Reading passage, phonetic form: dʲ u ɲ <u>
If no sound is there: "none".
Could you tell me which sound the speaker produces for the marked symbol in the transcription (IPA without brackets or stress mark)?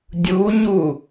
u